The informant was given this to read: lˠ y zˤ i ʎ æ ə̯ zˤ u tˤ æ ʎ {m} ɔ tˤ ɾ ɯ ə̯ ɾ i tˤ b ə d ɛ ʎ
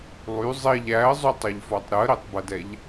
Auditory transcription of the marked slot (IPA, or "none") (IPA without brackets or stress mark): f